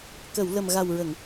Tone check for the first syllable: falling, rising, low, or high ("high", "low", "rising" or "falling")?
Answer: low